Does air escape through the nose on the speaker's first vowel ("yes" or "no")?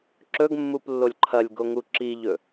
no